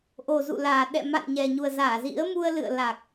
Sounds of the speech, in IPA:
ʔ o˨˩ z ṵ˧˨ l aː˨˩ ɗ ɛ̰˧˨ m a̰˧˨ n ɲ ɛ˨˩ ɲ u˨˩ ə̯ z aː˧˩ z ḭ˧˥ ə̯ m u˧ ə̯ l ɨ̰˧˨ ə̯ l a˨˩ k̚

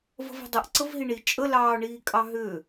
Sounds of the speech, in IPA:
v ə̤ v e̤ dˤ ə ʔ ǀ ə v ɦ i ɳ i t͡ʃʼ ə l ɑː ɳ iː kʼ ɑ ɦ ʏː

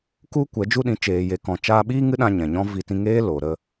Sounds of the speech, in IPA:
k u˦ kʷ ɛ˨˦ d͡ʒ u˦ ɗ ĩ˧ t͡ʃ eː˨ j e˨ k ɔ̃˨ t͡ʃ aː˧ ɓ iː˦ ŋ ɨ˦ ɗ ã˧ ɲ ɛ̃˨ ɲ ɔ̃˦ v i˧ t ĩ˧ ŋ eː˦ l o˨ ɾ ə˧

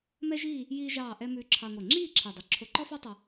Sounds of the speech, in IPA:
m ɛ˥ ʒ iː˥˧ | j iː˥ ʒ ɑː˥˧ ʔ ɛ˥ m ʉː˧ ǁʰ ɑ˧ ŋʷ ɛ˧˩ ŋ͡ǁ iː˥˧ ǁʰ ɛ˧˩ dˤ ɵ˧ ǁʰ o˧ ǃ ɔ˥ f ɑ˥ tˤ ɑ˧

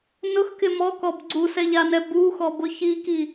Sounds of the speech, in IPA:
n ʊ x k ɪ m ɔ k ɔ b ɡ͡ǀ u s ɛ ʎ a n ɛ b u x ɔ b ʊ ç i k i

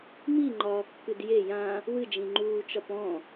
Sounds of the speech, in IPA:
m i ŋ͡ǃ ɒː kː ɨ d j e j ã | w ɨ d͡ʒ ĩ ŋ͡ǃ uː t͡ʃ ɒ p ɔ̃

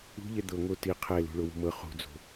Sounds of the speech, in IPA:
ṳ ʎ ɛ d̪ ɤ ŋ o t i qʰ ɛ l ṳ ɭ o w ṳ m ɤ χ ṳ d͡z o̤

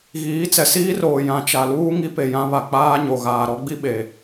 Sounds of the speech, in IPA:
ɣ iː˨˦ t͡s ɛ˨ s iː˦ r oː˨ j ã˨ t͡ʃ a˨ l uː˦ ŋ i˦ p e˨ j ã˦ β a˨ k͡p aː˦ ɲ o˨ ɣ aː˨ ɾ ɔ˦ ɡ͡b i˦ ɓ e˨

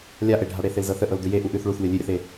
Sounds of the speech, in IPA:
lʲ a ʔ e ɖʱ a ɽ e θ e l z ɤ θ ə ʔ ɤ l d ʉ j e ʔ u ʔ ʉ θ ɭ u θ lʲ ɤ lʲ ʉ ɾʲ ə θ e

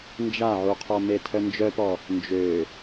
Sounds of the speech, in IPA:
n d͡ʒ a ʕ u qʰ ɔ m e tʰ œ n d͡ʒ œ p ɔ | n d͡ʒ ø

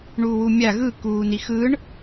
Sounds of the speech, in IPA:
ɳ uː w u mʲ a ɣ ɯ k uː n i x ɯ ɳ

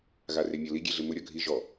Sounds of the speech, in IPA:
ɣ a r e mʲ ɔ l i ɡʲ e ɮ ɪ m ʊ ɾʲ ɔ ɡʱ i ʒ ɔ

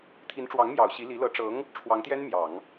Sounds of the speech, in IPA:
t̪ʰ i˧˥ n ʈ͡ʂ w ɑ˧˥ ŋ m j ɑ˨˩ ʊ̯ ɕ i˧˥ l i˧˥ l ɤ˧˥ ʈ͡ʂ ɤ˧˥ ŋ | ʈ͡ʂʰ w ɑ˧˥ ŋ t̪ j ɛ˥ n m j ɑ˨˩˦ ŋ

